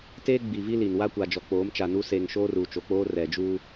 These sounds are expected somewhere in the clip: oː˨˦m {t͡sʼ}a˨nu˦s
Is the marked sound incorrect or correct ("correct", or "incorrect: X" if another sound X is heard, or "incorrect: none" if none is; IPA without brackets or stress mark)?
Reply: incorrect: t͡ʃ